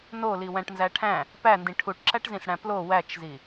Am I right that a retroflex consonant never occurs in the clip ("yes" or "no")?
no